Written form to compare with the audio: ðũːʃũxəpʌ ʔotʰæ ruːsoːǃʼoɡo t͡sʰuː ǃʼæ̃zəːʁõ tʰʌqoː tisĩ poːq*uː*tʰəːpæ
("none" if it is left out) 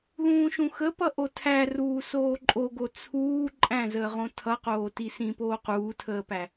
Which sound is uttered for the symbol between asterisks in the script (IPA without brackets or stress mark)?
uː